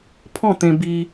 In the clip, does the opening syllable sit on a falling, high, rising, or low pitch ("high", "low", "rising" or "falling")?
falling